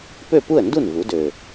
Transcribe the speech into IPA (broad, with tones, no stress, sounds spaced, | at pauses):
p ø˥˩ p u˥˩ ə̯ n d u˥˩ n v u˩˥ d ø˨˩